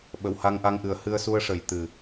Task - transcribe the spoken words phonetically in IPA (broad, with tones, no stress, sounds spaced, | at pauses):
ɓ ə˨˩˨ w h a˧ ŋ ʔ a˧ ŋ ʔ ɨ˨˩ ə̯ h ɨ˧ ə̯ s u˧ ə̯ ʂ ə˨˩˨ j t̪ ɨ˨˩